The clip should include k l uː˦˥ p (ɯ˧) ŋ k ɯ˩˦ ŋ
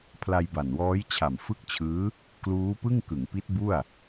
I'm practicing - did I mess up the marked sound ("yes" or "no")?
yes